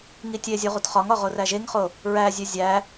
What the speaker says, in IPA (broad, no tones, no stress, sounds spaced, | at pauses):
ŋ i tʲ e zʲ u ʁ u t χ ɒ ŋ ɒ ʁ o r æ ʒ e ŋ χ o | ɹ æ zʲ e zʲ æ